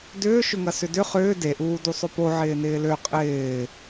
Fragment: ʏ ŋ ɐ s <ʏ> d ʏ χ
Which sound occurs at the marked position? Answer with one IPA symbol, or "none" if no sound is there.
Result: ʏ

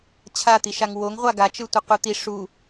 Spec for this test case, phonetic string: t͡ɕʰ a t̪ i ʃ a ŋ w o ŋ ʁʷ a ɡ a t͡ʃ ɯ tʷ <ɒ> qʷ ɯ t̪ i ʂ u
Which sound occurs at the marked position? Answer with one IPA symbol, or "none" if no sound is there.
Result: ʌ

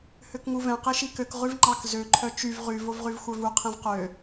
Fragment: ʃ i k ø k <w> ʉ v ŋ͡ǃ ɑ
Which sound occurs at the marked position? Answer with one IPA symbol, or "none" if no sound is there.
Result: ʁ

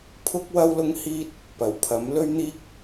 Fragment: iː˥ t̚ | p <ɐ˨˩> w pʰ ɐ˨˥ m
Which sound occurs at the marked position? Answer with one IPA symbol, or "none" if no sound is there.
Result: ɐ˨˩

